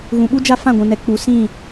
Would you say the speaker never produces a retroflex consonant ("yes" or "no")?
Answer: yes